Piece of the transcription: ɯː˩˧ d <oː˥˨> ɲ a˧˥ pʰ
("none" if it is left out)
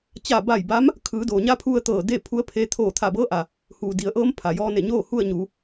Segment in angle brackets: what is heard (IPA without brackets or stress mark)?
oː˩